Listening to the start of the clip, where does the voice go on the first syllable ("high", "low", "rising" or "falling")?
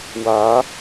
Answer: rising